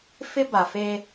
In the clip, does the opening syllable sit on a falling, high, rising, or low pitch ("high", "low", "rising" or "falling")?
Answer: high